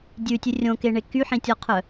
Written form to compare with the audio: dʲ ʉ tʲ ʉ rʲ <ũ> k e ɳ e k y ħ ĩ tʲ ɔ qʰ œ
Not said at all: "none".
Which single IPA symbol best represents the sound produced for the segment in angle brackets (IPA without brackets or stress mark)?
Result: õ